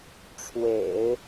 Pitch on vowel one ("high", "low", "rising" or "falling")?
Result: low